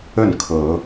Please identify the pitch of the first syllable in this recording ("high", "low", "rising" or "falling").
falling